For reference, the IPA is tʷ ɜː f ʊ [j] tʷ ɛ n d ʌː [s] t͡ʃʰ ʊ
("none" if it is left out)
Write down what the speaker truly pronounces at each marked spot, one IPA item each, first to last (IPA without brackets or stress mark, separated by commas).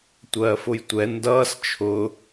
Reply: j, s